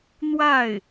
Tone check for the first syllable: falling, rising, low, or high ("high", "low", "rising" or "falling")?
falling